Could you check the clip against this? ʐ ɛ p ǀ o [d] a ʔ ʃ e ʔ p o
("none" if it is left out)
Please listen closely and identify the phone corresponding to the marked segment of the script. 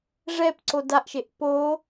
d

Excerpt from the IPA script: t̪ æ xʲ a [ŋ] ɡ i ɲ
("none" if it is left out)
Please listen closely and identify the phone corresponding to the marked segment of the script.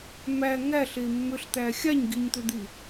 ɲ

